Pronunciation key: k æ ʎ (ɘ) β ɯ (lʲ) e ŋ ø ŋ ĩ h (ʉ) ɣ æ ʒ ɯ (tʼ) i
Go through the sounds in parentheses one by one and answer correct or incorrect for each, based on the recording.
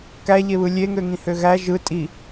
incorrect: e, correct, incorrect: ø, correct

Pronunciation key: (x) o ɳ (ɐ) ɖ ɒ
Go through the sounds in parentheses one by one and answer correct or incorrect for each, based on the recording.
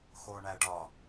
correct, incorrect: æ

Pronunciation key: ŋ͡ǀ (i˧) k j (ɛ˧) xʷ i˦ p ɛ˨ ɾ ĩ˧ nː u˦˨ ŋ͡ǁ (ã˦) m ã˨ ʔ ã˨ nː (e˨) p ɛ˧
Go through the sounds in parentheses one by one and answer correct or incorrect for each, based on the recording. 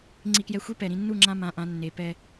correct, correct, incorrect: ã˧, correct

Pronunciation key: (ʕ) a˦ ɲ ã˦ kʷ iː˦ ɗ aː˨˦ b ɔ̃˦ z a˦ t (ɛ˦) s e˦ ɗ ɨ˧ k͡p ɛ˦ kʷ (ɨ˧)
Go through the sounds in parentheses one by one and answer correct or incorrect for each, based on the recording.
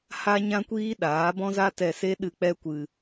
incorrect: h, incorrect: ɛ˧, correct

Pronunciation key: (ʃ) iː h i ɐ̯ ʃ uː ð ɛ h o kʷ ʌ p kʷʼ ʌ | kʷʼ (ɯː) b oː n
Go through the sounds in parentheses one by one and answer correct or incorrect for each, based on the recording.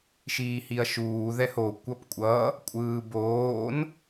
correct, correct

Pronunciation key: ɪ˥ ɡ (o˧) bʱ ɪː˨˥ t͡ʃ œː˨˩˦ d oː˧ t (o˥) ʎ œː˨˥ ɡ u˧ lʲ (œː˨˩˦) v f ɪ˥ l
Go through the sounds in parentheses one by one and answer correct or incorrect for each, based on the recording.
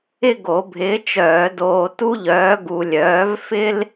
incorrect: o˨˩˦, incorrect: u˥, incorrect: œː˨˥

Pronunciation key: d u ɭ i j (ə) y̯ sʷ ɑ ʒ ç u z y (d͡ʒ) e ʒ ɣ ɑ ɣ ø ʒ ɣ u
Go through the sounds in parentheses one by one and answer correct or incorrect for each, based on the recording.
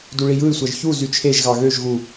incorrect: ɯ, incorrect: t͡ʃʰ

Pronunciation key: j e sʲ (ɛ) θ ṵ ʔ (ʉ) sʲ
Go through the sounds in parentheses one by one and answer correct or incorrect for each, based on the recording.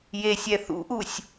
correct, incorrect: u

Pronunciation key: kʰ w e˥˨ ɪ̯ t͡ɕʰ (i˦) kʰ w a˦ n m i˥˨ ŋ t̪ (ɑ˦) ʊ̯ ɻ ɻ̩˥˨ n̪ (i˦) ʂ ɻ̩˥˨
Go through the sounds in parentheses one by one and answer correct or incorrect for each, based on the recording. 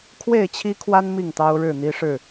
correct, correct, correct

